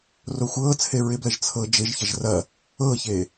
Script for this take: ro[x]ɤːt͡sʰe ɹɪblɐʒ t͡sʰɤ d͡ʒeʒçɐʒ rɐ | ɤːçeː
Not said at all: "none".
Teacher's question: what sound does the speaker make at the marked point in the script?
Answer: xʷ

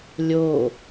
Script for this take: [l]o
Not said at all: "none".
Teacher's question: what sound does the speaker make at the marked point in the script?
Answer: lʲ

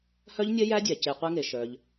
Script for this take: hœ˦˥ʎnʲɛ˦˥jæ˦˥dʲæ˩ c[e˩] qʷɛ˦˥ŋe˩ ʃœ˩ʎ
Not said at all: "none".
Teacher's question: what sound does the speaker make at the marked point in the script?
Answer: e˩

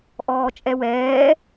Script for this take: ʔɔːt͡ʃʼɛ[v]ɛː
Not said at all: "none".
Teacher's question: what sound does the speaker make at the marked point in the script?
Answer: w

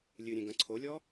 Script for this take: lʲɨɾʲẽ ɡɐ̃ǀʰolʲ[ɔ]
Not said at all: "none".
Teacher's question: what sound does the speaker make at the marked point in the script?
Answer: ɔ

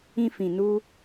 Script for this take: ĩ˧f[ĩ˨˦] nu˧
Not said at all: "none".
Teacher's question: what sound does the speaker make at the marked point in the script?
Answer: ĩ˨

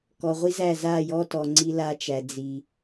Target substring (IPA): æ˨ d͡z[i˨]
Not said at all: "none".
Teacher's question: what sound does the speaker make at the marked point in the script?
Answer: i˨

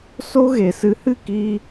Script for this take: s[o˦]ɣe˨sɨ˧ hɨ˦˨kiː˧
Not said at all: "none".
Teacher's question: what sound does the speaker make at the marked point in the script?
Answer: o˦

